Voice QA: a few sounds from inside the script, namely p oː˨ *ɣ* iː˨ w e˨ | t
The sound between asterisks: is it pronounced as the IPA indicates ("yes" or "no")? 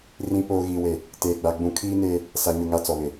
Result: yes